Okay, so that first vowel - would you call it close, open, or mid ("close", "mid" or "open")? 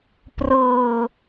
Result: mid